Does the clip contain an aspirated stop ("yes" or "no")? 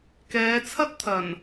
yes